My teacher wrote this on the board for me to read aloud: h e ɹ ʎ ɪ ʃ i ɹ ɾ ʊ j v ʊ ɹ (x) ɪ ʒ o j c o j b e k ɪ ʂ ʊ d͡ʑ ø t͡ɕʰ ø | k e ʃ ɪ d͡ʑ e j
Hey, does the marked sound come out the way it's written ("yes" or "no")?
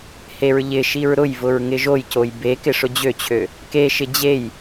no